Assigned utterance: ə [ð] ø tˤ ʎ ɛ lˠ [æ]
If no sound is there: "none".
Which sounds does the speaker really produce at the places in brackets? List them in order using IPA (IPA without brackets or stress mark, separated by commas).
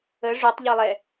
ʐ, ɛ